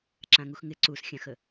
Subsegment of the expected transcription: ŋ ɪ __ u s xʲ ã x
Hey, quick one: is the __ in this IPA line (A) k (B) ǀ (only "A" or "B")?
B